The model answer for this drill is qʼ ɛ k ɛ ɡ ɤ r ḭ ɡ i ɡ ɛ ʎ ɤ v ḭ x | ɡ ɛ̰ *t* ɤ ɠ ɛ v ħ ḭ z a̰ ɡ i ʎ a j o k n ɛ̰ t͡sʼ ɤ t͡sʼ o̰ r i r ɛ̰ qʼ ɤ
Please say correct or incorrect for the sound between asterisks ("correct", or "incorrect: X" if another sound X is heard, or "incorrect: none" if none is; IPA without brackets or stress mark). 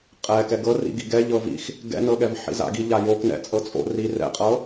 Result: incorrect: n